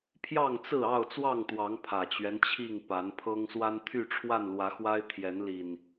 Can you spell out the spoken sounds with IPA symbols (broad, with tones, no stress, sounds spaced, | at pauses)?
pʰ j ɑ˥˨ ŋ t͡s ɹ̩˥˨ ɑ˥˨ ʊ̯ t͡s w ɑ˥˨ ŋ t̪ w ɑ˨˦ ŋ pʰ ä˨˩ t͡ɕ ɥ ɛ˦ n t͡ɕʰ i˥˨ ŋ p a˨˦ n pʰ ɤ˦ ŋ s w a˦ n t̪ʰ y˥˨ ʈ͡ʂʰ w a˥˨ n l w ä˨˦ x w a˦ ɪ̯ t̪ʰ j ɛ˨˦ n l i˨˩ n